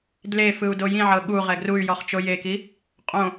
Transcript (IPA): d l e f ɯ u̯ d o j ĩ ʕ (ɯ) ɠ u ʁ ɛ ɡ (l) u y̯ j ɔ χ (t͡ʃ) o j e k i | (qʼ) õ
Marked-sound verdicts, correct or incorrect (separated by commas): incorrect, incorrect, correct, correct